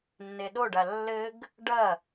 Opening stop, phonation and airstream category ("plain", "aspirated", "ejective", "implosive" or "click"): implosive